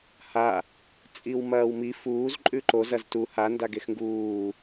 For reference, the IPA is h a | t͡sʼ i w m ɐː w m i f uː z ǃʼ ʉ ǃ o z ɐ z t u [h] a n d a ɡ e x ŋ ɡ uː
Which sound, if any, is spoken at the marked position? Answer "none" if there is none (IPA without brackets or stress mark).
h